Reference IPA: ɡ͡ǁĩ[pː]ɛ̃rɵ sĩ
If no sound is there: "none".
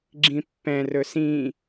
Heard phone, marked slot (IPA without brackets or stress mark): pː